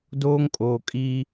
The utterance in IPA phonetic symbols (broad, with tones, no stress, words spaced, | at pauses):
doː˦ŋkʼoː˨ kʼi˦